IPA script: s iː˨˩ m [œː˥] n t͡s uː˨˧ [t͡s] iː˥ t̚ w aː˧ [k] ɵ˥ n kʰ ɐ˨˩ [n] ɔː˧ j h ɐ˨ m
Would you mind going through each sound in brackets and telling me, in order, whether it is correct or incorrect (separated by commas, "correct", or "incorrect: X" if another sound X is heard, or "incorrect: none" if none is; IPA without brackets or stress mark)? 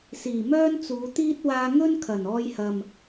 correct, incorrect: t̪, incorrect: ŋ, correct